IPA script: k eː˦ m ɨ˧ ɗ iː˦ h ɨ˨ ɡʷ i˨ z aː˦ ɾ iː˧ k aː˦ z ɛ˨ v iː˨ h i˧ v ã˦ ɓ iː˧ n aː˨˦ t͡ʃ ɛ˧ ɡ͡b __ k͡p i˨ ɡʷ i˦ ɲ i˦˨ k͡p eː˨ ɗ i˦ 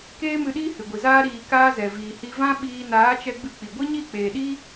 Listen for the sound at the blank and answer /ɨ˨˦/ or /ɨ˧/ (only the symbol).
ɨ˧